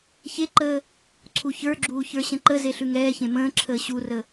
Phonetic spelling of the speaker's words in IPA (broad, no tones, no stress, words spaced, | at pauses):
çeǃəː | ǀʰuçə˞ɡ͡ǁuː çə˞ɕə̃ǃəze ɬʉŋɛːçẽ mə̃ːǁʰəː ɕurə